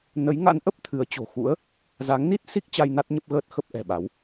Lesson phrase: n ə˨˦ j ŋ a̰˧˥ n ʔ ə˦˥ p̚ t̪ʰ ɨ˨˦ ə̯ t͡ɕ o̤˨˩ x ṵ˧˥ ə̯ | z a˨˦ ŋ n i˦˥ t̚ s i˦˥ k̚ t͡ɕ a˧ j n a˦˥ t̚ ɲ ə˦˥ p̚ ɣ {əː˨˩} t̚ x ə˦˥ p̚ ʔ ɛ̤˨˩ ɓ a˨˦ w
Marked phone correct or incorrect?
incorrect